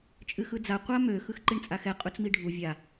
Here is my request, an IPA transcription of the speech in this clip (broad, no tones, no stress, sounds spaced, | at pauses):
t͡ʃʼ ɨ x ɯ d͡z a qʷ a m ø x ɯ x ǃ i ɳ t͡sʼ a x ɛ qʼ u t͡s m i ɖʱ u vʲ a